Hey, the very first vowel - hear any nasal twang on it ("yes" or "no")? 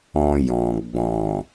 yes